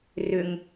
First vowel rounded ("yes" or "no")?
yes